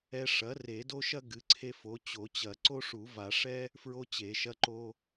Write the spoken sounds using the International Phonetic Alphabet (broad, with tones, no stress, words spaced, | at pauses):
ɛ˦ ʂɐ˩˥ re˨˩˦do˦ʃɐ˦ ɡɨ˩˥ǀʰe˦fo˩˥ t͡ɕo˨˩˦t͡ɕɐ˨˩˦ ǀo˦ʂu˨˩˦va˨˩˦ ʂɛ˦ | fɹo˦t͡ɕe˨˩˦ʃɐ˦ǃo˦